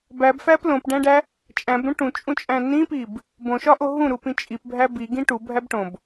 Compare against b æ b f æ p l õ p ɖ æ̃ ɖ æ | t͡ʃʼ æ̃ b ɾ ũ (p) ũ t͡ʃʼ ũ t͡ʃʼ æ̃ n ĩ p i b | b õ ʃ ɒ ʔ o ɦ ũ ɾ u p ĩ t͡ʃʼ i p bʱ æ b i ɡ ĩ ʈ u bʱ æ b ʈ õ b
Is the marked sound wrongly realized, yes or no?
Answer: yes